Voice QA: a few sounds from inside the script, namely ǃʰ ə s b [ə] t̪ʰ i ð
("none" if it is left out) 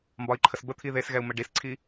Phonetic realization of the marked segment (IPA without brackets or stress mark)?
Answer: ə